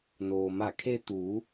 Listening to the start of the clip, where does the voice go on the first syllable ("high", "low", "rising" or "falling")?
low